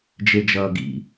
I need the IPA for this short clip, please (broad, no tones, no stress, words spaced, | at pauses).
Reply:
d͡ʒed͡ʒʌːɡḭ